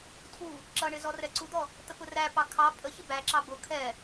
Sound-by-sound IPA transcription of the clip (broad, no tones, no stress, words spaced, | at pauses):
tʰu | ǁʌɳɪ zɔrɛǀud̪ɔ | t̪əpʊræpɑ kʰɑ pʼəçɪ bæǁɑ bʊ kʰɛ